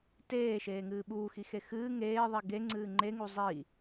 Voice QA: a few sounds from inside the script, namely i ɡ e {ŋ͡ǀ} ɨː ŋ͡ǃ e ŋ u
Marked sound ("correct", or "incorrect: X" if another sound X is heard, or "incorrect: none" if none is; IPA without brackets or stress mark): correct